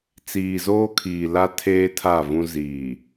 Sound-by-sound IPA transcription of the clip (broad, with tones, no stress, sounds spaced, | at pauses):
t͡s iː˨ z oː˦ kʰ iː˨ l a˦ tʰ eː˦ tʰ a˦˨ v ũ˦ z iː˨